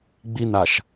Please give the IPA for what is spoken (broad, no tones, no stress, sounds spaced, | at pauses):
ɡ͡b i n a ʃ